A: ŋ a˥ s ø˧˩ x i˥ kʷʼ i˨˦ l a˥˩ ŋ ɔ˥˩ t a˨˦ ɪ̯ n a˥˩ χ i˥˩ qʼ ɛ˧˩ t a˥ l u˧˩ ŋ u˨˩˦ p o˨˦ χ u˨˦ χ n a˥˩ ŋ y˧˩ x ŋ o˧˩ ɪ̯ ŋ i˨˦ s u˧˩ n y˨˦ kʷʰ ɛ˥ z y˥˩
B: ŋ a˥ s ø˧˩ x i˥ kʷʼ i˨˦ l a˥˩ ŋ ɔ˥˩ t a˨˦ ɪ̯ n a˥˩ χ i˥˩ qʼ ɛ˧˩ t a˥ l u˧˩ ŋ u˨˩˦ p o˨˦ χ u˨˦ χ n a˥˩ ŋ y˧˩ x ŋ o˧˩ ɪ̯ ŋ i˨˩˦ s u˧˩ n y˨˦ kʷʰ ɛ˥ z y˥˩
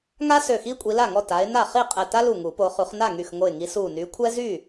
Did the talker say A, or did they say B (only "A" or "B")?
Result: A